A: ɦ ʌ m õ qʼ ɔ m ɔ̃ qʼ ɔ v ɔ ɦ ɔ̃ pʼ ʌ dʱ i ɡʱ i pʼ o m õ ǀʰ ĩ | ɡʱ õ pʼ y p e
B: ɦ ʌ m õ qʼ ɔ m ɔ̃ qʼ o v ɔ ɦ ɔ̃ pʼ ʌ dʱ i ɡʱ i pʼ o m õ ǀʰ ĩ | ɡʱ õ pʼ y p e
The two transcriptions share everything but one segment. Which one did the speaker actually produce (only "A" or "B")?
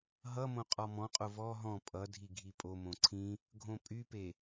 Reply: B